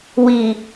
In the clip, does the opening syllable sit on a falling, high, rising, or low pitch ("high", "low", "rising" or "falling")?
low